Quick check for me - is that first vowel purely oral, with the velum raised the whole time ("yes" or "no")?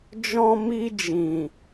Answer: no